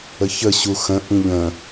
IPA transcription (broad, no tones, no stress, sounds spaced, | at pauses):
ə ç ə ɕ u x ə̃ ʔ ĩ ʎ ə̃